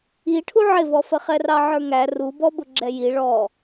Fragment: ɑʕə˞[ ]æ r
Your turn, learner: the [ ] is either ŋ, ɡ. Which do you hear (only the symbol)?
ŋ